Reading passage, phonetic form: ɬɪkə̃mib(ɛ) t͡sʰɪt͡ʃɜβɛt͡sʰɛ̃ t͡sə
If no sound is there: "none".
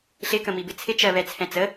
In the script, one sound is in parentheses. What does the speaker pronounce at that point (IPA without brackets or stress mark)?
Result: ɪ